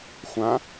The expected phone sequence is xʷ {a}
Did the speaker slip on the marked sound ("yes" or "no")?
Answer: yes